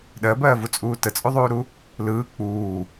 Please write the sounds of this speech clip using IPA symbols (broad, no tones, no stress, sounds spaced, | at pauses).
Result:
ɗ ɜ b ɜː v u t͡sʼ uː t ə t͡sʼ u ðˤ uː ɾ u | l ɯː k͡p uː